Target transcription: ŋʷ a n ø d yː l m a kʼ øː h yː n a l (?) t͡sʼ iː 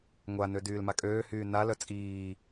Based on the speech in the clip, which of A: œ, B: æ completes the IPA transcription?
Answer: A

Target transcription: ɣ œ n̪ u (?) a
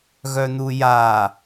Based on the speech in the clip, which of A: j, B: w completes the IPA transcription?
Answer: A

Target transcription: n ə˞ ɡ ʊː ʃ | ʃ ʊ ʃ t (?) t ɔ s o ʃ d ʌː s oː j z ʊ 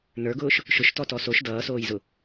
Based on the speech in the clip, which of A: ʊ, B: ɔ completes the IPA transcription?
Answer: B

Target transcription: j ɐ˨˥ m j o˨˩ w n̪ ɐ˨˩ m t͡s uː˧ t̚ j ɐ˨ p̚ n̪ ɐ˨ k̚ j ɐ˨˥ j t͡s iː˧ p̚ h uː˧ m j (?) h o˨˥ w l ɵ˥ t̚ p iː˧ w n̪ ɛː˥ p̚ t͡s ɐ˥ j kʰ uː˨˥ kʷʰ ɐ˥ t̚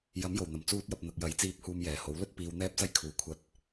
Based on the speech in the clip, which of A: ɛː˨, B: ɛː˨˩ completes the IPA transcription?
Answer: B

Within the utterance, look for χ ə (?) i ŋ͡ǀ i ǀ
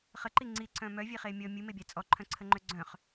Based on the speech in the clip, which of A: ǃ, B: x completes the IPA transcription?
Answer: A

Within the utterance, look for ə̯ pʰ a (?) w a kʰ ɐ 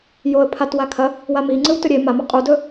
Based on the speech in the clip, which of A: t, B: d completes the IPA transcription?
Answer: A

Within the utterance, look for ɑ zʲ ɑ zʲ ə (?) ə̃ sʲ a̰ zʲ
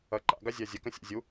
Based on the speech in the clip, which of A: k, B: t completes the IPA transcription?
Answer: A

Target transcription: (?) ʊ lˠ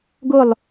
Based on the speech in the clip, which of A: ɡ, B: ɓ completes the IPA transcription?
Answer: A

